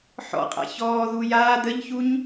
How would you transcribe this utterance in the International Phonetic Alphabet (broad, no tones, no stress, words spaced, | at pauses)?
ħɔ̰ qʼa̰çɔːðuː jaː d̪əʎçuɲ